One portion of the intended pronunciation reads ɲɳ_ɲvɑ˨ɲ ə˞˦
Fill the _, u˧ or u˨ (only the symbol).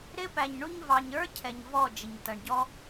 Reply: u˧